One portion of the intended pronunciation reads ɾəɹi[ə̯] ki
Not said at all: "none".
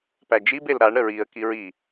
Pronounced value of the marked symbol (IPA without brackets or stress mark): ə̯